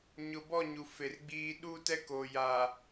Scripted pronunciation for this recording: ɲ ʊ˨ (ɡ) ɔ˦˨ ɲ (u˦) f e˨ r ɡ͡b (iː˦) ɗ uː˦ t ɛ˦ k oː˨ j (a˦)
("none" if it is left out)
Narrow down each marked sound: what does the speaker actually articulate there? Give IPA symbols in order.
b, u˨, iː˦, a˨

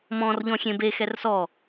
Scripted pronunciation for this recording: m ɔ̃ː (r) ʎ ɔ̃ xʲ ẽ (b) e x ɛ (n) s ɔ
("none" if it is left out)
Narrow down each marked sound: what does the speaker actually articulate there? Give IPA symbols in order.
r, b, r

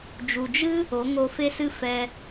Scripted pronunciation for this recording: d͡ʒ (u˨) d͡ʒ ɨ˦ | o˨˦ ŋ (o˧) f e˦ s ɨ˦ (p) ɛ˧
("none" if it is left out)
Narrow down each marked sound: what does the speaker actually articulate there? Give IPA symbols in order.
u˨, o˧, f

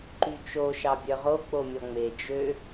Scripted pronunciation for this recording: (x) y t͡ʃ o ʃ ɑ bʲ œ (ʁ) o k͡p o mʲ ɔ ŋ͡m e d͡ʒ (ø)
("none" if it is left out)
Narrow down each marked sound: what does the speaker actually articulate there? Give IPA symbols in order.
ǃ, ʁ, ø

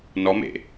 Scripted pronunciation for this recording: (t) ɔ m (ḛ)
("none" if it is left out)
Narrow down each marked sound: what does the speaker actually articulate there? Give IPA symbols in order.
n, ḛ

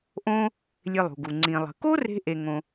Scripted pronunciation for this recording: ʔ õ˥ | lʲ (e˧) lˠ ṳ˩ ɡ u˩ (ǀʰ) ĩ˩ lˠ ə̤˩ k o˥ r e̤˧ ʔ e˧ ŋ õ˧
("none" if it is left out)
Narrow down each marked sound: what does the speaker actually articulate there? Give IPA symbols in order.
e˧, ŋ͡ǀ

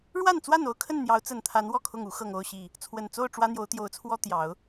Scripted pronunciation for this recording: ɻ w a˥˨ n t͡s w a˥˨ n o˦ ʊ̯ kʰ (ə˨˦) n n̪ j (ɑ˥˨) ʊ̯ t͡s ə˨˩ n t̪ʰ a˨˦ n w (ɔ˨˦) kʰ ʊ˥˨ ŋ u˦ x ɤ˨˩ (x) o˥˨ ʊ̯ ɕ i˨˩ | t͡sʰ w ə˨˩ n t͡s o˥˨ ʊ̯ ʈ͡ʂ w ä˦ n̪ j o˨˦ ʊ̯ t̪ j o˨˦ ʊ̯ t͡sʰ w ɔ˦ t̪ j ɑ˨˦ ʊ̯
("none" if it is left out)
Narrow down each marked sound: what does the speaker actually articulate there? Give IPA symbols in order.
ə˥˨, ɑ˨˦, ɔ˥˨, ŋ

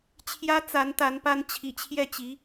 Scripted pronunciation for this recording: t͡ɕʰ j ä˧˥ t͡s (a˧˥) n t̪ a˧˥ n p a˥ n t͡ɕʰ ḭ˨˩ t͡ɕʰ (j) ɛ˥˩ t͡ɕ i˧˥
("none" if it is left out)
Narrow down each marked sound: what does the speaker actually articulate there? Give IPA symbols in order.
a˧˥, j

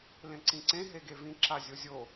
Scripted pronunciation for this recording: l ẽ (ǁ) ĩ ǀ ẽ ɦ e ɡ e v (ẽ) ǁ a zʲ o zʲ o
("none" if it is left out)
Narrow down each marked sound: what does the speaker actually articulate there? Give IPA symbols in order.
ǀ, ĩ

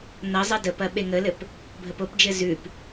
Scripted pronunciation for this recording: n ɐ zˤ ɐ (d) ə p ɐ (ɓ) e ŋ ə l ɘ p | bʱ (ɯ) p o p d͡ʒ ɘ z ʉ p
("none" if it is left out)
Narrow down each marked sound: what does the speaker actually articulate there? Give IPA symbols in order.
d, ɓ, ə

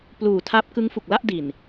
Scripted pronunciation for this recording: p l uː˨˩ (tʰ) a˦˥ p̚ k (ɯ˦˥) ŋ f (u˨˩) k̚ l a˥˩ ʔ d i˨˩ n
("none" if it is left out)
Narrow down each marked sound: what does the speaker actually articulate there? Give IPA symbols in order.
tʰ, ɯ˦˥, u˨˩

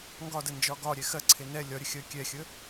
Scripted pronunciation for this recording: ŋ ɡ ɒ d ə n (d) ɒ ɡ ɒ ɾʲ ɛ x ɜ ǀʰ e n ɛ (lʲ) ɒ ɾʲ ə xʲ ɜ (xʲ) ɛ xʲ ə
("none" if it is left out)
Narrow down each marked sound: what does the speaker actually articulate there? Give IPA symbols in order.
d͡ʒ, lʲ, kʲ

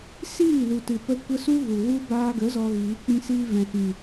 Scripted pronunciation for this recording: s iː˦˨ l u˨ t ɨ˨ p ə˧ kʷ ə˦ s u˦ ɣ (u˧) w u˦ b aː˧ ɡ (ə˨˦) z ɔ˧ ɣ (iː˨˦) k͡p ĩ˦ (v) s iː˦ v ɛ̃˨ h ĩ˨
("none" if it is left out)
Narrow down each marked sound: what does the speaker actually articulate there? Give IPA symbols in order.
u˨, ə˨˦, iː˨˦, none

